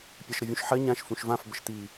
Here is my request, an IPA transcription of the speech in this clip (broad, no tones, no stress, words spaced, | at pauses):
pʲɑʃɾəvʲũʃħɜ ɲãʃ fũʃvãf bəʃt̪i